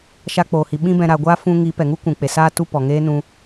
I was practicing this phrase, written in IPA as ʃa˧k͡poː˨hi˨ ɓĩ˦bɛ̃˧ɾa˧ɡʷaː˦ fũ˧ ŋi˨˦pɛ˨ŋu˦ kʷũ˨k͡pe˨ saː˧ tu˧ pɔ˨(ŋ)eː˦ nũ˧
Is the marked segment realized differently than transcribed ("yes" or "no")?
no